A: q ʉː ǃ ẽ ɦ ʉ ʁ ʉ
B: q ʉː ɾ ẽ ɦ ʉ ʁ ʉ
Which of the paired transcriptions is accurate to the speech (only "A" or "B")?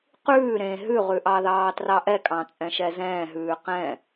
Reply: B